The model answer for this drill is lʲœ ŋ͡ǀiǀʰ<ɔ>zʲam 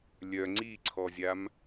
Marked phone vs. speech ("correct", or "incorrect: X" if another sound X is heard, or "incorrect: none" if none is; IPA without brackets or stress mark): correct